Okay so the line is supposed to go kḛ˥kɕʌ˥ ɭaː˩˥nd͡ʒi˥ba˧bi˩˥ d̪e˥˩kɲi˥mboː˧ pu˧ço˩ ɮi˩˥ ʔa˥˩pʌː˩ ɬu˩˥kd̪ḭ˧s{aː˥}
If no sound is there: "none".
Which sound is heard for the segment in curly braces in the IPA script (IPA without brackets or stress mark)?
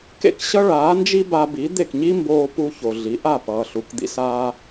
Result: aː˥